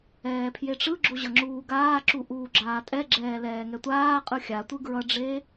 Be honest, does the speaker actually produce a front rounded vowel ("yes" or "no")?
no